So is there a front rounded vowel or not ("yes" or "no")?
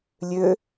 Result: yes